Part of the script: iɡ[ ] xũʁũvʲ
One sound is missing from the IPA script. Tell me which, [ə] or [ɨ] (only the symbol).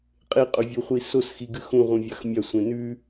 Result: ɨ